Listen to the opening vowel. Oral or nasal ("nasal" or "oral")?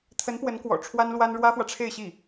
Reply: oral